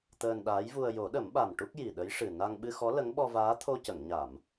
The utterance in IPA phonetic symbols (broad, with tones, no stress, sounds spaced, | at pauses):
t̪ əː˧ n ɗ aː˧˥ j v u˧ ə̯ j o˨˩˦ ɗ ə˨˩˦ m ɓ a˨˩ m ʈ u˦˥ k̚ j i˨˩ ɗ ə˧˥ j ʂ ɨ˨˩ n a˧ ŋ ɓ ɨ˧ x ɔ˧˥ l ə˧˥ ŋ ɓ ɔ˧ v aː˧˥ t̪ʰ o˧ c ə˨˩˨ ŋ ɲ a˨˩˨ m